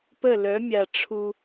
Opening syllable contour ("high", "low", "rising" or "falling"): falling